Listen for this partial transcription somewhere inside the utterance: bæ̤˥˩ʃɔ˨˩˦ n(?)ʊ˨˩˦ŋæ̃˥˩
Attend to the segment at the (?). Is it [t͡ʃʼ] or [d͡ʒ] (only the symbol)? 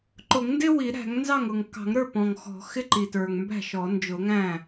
d͡ʒ